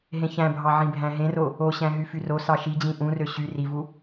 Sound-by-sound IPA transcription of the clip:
ɦẽçæ̃bʱɑ ʕĩbʱæ̃ɦẽro | oɕæ̃ ɦyfyrosɑ ʃid͡ʑĩ ʔũrø ɕy rivu

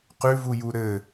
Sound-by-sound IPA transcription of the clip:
qʉvu juɾɘ

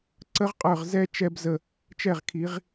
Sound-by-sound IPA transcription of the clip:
ǀə˥ʁqʼə˞˥˩ʁzɛ˥ t͡ʃɛ˥bzə˥˧ | t͡ʃɛ˥˩ʁkʰi˨˦ʁ

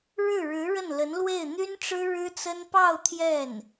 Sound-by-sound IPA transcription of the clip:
ɻɻ̩˥˩ɻɻ̩˧˥ ɻə˥˩nlə˧˥n lwe˥˩ɪ̯n̪y˥nʈ͡ʂɻ̩˥ ɻɻ̩˥t͡sə˥n pɑ˥˧ʊ̯ t̪ʰjɛ˥˩n

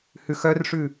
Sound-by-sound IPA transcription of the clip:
hʉxœrʂʉ

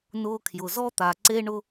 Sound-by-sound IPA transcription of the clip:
nʊː˧kʰjʊ˨zɔ˦t̪a˨ ǀe˧ɳʊ˧

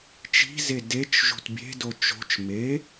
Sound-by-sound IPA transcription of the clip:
t͡ʃi̤ze det͡ʃ ʒṳtbʲe̤do t͡ʃo̤t͡ʃ me

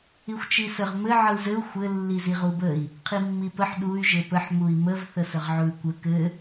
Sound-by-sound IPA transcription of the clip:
ixʷt͡ʃisəʁ mɘ ʕəu̯zɘu̯ xʷɘ lːiziʁubəi̯ | qʰimːipəħ ɗuy̯ ʒɘpəħ mui̯məv θəsəʁʕuy̯kʷə kɘ

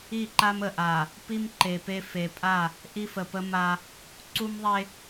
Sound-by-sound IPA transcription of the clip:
i˦˨ǃa˦mə˨ʔa˨ | pi˦mǃe˨pe˦fe˨ pʼa˦˨ | ʔi˦fə˨pə˦ma˦ | ǀu˦mðˤe˦

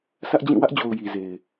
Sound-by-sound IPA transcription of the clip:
sä˦ʔd͡ʑĩ˦˨ wä˦ʔd͡ʑo˨ʊ̯ ji˨ze˨ɪ̯

